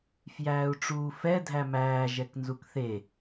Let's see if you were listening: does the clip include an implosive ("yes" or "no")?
no